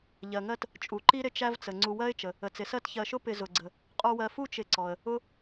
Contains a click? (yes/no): yes